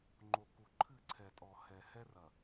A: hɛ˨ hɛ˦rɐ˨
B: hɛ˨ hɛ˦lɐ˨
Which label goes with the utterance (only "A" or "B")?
A